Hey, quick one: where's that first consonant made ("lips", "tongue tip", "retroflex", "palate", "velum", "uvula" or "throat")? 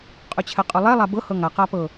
uvula